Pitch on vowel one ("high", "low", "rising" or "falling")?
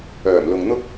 low